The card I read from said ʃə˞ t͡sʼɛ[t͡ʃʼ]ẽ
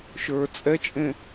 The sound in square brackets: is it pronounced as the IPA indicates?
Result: yes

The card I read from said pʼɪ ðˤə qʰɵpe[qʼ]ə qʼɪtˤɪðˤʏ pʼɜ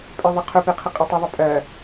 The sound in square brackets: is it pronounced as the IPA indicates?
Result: no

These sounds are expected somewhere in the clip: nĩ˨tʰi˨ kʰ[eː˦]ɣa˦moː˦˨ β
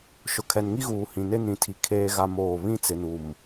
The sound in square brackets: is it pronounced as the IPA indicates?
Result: yes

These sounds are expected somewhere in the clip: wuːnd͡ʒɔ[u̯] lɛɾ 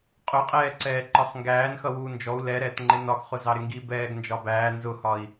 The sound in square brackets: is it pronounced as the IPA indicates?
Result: yes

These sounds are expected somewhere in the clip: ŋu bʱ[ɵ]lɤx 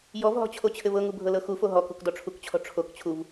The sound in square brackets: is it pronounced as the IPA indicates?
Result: no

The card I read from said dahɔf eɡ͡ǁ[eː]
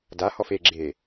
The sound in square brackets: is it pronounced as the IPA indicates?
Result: yes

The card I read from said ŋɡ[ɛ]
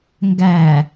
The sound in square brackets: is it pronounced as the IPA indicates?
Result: no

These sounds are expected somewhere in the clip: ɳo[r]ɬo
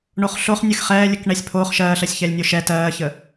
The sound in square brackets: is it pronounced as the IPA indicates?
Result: no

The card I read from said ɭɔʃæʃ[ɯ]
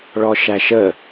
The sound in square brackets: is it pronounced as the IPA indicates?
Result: no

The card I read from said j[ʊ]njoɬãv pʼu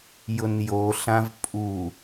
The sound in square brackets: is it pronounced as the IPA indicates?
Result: yes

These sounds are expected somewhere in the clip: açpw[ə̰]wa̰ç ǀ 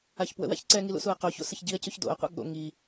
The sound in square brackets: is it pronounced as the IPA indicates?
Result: yes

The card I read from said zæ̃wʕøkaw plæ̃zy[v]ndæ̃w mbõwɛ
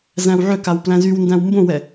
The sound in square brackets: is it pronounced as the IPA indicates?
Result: no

